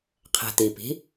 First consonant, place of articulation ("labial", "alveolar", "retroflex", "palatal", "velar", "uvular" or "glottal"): uvular